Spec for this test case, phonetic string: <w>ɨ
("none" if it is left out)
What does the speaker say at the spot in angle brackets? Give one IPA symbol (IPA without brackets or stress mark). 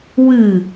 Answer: w